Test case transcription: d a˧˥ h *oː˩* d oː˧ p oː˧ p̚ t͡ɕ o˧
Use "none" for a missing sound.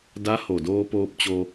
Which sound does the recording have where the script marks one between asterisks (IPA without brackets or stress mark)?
o˩